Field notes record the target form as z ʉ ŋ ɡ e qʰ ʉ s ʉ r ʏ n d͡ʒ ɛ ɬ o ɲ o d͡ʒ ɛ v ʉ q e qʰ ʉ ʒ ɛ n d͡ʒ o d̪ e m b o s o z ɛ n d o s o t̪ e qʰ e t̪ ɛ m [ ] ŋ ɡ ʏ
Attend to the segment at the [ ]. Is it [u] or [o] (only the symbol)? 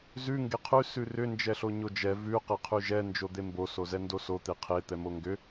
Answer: o